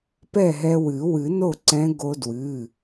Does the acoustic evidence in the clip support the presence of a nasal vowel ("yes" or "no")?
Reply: yes